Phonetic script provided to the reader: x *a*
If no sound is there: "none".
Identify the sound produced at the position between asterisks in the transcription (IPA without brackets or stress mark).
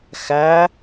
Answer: æ